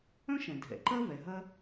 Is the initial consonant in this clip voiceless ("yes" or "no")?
yes